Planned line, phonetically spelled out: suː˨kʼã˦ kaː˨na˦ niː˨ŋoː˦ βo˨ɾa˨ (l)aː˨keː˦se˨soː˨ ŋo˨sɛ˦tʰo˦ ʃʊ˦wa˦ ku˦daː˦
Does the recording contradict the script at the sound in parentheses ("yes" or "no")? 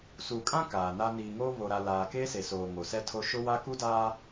no